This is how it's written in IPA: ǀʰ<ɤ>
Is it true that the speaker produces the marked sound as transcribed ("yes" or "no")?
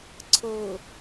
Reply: yes